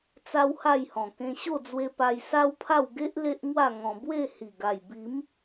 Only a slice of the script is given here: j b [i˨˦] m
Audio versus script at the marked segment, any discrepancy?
no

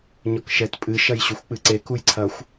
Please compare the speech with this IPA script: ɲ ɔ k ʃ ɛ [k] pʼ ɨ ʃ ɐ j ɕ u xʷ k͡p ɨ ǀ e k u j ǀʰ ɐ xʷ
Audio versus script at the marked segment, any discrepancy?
yes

